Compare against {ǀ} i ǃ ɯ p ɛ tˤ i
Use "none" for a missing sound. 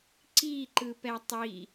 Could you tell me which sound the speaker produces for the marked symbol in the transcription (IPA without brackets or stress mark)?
ǀ